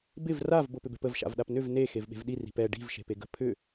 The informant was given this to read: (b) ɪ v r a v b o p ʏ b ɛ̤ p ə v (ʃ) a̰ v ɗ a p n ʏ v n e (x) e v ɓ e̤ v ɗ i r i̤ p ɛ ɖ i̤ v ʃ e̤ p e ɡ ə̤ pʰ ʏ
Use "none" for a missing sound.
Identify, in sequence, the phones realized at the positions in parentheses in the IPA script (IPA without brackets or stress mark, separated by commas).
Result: b, ʃ, x